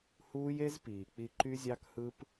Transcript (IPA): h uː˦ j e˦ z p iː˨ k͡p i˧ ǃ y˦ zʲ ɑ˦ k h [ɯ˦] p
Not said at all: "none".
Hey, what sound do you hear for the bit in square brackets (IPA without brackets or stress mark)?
ɯ˦